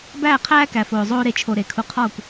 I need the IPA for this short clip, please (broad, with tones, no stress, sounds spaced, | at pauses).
b æː˥˧ qʰ æː˥ k æ˧ f oː˧ zˤ oː˥ ɾ e˧ t͡ʃʰ o˧ ɾ e˩˧ kʰ u˧ qʰ ɒː˥˧ kʷ